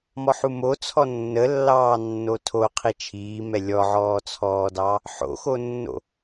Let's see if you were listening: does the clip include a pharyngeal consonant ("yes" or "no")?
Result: yes